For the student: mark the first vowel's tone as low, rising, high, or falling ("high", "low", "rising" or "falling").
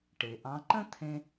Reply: low